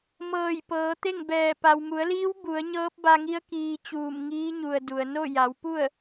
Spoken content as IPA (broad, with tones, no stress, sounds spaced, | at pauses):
m ɤː˧˩ j p ɤː˩˧ t̪ e˥˨ ŋ b ɛː˧˩ p a˩ w m u˩˧ ə̯ l iː˧˥ w b u˩˧ ə̯ ɲ ɤː˧˥ p̚ b a˧ ŋ i˧˥ ə̯ k iː˧ t͡ɕ uː˧˩ m ŋ iː˧˥ ɲ u˩ ə̯ d u˩ ə̯ n o˥˨ j a˩˧ w p u˥˨ ə̯